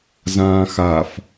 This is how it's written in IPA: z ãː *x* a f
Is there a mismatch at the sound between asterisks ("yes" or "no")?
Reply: no